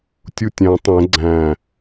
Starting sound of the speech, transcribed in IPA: tʲ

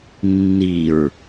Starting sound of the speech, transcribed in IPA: nː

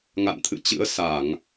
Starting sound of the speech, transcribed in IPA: ŋ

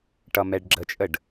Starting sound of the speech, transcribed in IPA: ʈ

